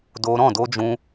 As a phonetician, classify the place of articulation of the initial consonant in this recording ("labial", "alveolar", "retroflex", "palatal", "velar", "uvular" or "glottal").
alveolar